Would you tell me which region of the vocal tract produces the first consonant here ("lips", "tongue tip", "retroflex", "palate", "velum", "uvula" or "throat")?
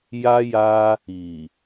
palate